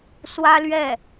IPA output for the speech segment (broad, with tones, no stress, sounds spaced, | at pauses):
s w ä˥ l ɥ ɛ˥˩